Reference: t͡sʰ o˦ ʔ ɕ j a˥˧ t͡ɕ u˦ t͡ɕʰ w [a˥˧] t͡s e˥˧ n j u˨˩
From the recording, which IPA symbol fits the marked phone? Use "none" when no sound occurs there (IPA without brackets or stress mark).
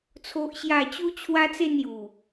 a˦